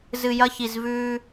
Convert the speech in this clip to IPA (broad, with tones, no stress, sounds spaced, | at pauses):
z ɨ˨ j ɐ˦ ç i˨ z v ʉ˦